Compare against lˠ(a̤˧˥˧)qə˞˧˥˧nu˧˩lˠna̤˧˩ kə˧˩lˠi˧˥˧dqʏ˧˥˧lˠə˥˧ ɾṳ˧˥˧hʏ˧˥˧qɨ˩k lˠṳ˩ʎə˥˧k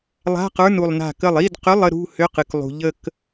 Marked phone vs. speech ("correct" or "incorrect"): correct